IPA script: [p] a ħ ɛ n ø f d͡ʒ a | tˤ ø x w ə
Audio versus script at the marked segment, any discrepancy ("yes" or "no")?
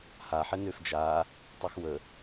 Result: yes